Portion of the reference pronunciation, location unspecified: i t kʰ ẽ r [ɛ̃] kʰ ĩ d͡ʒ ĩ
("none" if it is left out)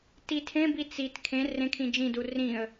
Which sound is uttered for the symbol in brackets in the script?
ẽ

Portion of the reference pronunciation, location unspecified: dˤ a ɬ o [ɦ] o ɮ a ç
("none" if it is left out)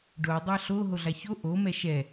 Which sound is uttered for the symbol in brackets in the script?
ɦ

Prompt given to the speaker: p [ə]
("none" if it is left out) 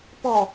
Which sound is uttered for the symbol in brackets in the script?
ɔ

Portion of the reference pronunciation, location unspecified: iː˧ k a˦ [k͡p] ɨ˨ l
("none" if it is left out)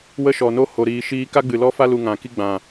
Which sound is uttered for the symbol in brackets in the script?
ɡ͡b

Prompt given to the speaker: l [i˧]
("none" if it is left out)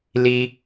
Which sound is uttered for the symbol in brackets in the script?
i˧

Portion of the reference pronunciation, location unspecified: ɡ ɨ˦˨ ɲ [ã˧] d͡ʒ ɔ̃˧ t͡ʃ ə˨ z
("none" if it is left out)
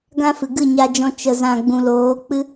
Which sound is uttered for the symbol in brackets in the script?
a˧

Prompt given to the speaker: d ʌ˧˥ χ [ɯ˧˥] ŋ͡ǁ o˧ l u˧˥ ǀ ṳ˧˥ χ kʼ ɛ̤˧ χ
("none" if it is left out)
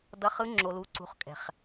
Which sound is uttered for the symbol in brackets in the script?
ɯ˧˥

